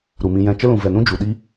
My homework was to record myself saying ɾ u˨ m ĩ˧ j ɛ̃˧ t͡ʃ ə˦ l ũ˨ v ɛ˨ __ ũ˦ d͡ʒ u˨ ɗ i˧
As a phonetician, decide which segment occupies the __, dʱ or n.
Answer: n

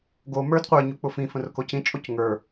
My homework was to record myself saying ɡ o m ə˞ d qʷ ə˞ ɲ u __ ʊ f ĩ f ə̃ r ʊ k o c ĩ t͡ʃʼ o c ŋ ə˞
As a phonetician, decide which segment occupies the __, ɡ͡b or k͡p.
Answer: k͡p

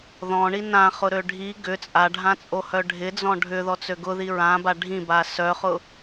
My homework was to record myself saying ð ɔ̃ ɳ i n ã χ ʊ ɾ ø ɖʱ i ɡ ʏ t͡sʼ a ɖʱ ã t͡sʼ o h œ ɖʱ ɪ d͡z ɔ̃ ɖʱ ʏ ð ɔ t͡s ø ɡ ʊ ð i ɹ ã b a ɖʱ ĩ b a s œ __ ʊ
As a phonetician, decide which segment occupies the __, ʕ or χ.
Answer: χ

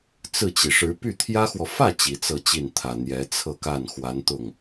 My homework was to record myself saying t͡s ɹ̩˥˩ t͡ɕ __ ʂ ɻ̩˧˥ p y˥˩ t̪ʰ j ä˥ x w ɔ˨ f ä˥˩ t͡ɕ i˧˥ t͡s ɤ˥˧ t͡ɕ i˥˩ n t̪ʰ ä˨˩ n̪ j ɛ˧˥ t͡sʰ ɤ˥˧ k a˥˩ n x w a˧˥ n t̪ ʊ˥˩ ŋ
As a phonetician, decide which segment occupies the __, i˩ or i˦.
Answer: i˩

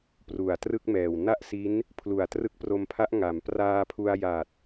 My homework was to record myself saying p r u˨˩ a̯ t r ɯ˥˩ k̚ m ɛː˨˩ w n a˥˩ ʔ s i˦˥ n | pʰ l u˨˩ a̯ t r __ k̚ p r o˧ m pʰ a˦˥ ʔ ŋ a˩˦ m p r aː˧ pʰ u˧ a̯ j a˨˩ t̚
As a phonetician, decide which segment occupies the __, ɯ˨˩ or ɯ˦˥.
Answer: ɯ˦˥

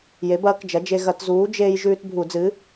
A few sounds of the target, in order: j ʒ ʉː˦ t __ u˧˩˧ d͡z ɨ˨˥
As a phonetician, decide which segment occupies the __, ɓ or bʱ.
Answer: bʱ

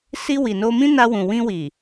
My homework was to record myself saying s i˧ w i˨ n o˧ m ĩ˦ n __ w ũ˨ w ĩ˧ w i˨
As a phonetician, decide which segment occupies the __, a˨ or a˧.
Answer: a˧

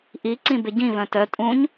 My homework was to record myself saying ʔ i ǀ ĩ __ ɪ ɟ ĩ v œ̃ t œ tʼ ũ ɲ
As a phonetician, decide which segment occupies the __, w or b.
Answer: b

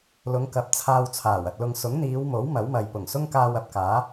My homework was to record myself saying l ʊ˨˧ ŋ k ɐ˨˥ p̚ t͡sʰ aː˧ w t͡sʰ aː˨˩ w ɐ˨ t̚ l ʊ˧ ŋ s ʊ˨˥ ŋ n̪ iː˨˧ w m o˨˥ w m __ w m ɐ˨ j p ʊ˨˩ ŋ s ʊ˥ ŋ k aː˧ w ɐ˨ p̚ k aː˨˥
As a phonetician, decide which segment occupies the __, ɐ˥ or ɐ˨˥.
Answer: ɐ˨˥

